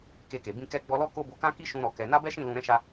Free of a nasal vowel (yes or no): no